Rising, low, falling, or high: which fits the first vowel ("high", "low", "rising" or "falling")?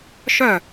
falling